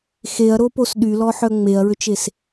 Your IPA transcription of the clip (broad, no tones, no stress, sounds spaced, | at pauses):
x e ɐ̯ ɾ o p o s ɗ y l ɔ ħ œ ŋ͡m e ɐ̯ ɹ ø t͡ʃ e s